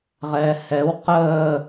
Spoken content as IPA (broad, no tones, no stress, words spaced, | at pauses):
ʁɛːhɛw qəː